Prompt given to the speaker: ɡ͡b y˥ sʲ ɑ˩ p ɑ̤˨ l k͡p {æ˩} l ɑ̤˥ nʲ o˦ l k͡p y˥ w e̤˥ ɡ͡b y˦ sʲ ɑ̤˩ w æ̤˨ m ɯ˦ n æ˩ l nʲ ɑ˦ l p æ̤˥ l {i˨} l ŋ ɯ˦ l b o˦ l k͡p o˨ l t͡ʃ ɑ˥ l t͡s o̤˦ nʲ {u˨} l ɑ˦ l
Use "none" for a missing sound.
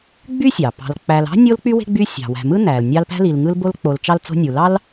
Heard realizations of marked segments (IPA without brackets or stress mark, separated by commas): æ˨, i˨, u˨